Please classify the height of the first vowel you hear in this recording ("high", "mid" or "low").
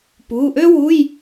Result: high